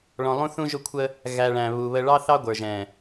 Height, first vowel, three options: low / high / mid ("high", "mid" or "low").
mid